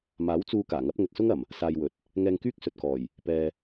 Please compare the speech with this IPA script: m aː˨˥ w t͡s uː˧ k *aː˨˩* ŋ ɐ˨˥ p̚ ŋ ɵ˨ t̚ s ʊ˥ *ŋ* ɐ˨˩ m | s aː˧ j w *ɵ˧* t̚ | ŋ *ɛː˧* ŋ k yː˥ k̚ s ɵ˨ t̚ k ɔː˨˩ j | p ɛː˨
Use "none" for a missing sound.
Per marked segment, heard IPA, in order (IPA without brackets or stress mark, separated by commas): aː˨˩, ŋ, ɵ˨, ɛː˧